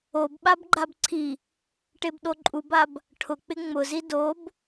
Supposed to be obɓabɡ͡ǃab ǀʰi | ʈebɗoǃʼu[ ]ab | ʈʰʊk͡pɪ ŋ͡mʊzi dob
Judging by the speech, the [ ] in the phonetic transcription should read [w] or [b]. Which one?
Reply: b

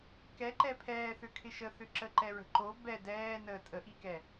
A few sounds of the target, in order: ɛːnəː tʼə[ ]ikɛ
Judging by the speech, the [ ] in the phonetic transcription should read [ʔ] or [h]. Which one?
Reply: ʔ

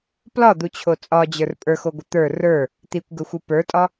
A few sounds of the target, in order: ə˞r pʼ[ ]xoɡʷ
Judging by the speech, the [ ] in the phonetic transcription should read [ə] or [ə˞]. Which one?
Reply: ə˞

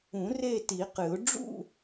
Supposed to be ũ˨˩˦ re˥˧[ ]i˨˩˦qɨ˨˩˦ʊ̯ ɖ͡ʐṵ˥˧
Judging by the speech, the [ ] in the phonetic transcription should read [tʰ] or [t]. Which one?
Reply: t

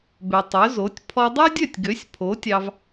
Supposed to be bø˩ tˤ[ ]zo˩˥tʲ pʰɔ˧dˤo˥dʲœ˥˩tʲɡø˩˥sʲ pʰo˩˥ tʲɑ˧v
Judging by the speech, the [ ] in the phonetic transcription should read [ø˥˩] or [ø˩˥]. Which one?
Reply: ø˩˥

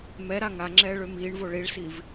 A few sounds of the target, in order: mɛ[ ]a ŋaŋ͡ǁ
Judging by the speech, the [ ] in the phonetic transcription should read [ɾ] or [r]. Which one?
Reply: ɾ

